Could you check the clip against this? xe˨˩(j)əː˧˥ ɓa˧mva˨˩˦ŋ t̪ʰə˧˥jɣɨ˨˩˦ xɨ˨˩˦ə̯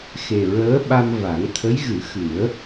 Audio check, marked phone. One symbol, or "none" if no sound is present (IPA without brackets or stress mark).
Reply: ɹ